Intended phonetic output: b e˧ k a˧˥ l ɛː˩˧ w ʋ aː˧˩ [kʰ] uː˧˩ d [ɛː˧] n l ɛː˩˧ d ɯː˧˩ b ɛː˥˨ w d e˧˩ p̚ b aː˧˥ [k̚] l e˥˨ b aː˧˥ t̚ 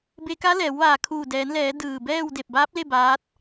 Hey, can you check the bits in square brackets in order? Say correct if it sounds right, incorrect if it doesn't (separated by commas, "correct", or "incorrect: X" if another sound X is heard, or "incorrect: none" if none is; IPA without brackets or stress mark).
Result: correct, incorrect: ɛː˩˧, incorrect: p̚